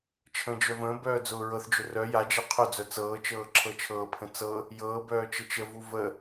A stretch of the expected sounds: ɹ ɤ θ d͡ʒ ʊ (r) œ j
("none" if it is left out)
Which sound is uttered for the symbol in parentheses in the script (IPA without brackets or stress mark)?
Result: r